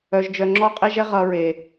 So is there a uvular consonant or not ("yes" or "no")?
yes